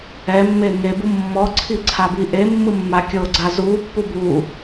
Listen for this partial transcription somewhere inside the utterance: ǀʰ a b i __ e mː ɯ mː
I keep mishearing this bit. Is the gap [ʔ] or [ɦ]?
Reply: ʔ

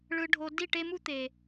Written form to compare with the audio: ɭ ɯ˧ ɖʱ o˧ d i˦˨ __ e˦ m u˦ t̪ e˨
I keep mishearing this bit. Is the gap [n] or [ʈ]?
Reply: ʈ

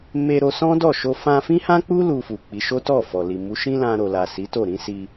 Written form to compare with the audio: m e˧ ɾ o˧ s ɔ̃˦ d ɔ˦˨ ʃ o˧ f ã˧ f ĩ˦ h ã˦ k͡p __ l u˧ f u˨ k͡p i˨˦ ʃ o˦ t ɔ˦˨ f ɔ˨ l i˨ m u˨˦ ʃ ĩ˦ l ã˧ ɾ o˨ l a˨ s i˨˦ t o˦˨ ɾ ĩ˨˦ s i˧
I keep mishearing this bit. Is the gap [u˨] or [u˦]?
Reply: u˦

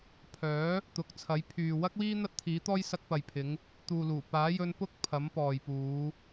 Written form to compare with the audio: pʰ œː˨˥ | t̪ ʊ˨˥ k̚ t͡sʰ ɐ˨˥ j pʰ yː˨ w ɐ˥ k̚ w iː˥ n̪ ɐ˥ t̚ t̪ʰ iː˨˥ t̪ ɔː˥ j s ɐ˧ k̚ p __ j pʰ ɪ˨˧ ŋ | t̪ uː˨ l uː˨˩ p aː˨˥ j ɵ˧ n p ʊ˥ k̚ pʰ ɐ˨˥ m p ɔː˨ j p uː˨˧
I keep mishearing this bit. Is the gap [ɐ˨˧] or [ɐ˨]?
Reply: ɐ˨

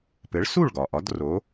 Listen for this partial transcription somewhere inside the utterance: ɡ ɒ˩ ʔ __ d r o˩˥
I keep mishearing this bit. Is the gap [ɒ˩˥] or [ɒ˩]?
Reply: ɒ˩˥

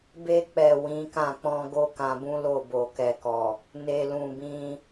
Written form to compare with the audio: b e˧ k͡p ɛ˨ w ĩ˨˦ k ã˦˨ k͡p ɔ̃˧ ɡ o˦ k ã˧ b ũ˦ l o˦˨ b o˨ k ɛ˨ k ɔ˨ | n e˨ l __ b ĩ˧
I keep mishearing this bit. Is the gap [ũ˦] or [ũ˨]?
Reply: ũ˨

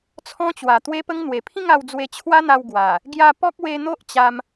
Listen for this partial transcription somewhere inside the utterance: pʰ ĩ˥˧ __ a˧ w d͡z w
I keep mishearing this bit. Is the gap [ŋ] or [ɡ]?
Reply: ŋ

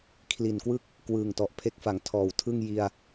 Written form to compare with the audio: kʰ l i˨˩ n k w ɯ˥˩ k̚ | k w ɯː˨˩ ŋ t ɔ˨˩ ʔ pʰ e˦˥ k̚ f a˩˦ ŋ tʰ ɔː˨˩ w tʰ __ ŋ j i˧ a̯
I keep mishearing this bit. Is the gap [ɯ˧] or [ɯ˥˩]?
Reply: ɯ˥˩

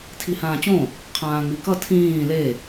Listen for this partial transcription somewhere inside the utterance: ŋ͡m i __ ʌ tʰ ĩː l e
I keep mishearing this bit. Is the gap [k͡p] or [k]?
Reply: k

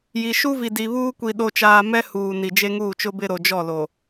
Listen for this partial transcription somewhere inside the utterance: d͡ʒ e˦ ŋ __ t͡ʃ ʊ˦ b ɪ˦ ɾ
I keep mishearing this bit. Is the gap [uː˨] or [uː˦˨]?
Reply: uː˦˨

